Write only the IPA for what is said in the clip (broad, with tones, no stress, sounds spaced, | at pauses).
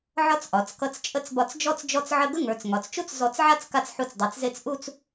ʕ ɒ˥ t͡s ʔ ɒ˩˧ t͡s k ʌ˧ t͡s t͡ʃʼ ə˥˧ t͡s b ɒ˧ t͡s d͡ʒ ɔ˥ t͡s d͡ʒ ɔ˥˧ t͡s ʕ ə˥˧ ɡ ə˥ ŋ ə˞˩˧ t͡s ŋ ɒ˩˧ t͡s t͡ʃ u˥ t͡s z ɔ˧˩ t͡s ʕ a˥˧ t͡s k a˧ t͡s ħ u˧ t͡s dˤ e˩˧ t͡s z e˥˧ t͡s ʔ u˥˧ t͡s